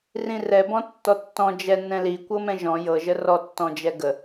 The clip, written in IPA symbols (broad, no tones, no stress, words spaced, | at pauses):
rĩrɛ bɔ̃tːɔtːɔ̃ d͡ʒɛ nɛ̃li kʷɤmɛ̃ʒɔ̃ jɤ ʒərɔ tːɔ̃d͡ʒɛɡə